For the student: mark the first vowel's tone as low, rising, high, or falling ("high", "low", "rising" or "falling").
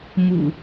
low